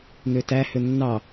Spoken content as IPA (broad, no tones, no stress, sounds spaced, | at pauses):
n̪ ø t æ h ø nː ɑ